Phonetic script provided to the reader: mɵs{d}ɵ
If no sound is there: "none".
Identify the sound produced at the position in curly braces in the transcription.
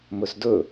d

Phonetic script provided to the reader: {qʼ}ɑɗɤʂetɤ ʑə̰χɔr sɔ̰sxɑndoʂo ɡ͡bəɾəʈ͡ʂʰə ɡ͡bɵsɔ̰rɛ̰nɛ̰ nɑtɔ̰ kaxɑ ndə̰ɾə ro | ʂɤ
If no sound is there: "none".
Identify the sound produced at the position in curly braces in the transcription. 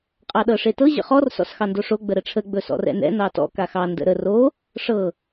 qʼ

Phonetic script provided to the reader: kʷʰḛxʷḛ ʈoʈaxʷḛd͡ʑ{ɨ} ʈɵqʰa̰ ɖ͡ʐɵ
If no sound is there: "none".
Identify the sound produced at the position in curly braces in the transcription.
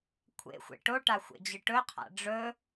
ɨ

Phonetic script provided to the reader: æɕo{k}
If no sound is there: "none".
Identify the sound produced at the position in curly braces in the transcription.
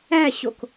k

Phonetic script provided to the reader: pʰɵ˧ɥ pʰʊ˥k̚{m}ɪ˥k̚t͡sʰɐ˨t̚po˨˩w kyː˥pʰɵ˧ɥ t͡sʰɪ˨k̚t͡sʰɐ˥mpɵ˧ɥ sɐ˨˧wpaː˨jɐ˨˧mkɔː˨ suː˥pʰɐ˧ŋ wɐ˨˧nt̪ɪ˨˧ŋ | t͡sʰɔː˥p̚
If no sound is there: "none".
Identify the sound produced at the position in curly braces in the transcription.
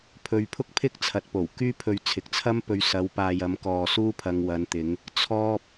pʰ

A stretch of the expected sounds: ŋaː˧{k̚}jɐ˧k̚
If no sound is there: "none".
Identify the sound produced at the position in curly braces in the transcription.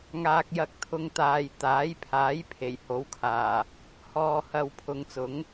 k̚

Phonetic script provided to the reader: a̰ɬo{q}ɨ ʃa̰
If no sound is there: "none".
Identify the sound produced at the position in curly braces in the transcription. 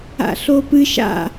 p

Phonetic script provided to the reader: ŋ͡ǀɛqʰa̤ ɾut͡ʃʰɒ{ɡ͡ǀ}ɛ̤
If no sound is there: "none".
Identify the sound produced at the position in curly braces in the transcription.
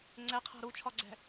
ɡ͡ǀ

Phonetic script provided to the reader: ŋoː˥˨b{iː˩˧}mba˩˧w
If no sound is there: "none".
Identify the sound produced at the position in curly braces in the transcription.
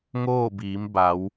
iː˩˧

